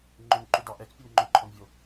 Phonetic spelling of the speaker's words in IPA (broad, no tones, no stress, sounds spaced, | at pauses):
ŋ͡ǃ ɵ n ǃ u d ɑ ʔ ɛ k pʲ o n ŋ͡ǃ ɵ ǃʰ ɔ n vʲ o